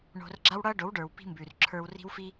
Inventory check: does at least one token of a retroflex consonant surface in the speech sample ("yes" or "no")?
yes